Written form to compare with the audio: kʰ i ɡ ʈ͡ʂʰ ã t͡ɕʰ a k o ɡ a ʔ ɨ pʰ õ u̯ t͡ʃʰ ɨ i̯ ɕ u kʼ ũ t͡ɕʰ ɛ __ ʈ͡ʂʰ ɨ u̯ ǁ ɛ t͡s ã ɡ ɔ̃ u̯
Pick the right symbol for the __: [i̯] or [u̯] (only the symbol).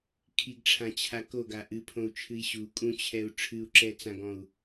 u̯